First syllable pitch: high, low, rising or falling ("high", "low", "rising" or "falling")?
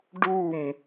falling